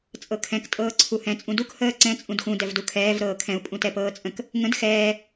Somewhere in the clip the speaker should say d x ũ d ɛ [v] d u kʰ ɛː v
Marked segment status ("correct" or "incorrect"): correct